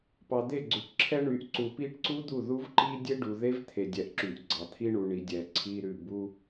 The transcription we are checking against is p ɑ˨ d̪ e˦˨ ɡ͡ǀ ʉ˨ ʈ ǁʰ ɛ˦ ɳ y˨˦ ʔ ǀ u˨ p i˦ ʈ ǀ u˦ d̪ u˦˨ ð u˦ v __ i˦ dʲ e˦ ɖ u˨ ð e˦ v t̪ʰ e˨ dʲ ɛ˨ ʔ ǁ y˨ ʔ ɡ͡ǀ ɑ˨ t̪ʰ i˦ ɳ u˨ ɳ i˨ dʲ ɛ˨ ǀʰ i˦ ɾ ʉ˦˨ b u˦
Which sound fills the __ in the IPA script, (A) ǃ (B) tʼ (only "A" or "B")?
A